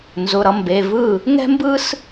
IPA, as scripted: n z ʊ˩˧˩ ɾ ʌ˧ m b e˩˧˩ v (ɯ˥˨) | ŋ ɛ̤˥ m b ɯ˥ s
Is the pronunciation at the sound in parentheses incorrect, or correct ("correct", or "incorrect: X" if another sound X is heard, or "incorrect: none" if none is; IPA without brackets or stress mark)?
correct